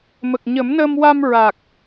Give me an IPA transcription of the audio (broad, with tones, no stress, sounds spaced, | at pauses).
m ə˨˩ k̚ ɲ ə˨˩˦ m n əː˧ m w a˧ m ɹ a˨˩ k̚